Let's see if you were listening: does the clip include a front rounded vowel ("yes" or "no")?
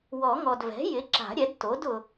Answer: no